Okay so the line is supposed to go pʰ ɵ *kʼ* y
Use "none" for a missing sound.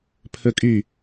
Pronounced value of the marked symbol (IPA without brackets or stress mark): kʼ